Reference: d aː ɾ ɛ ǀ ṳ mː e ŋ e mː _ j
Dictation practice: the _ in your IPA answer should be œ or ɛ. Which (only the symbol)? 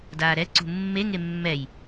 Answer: ɛ